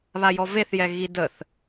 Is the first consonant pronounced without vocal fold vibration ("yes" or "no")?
no